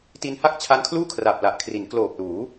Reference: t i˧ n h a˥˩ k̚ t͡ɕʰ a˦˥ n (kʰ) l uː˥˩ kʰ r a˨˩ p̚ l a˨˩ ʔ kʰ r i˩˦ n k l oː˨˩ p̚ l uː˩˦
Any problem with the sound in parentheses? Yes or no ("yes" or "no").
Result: no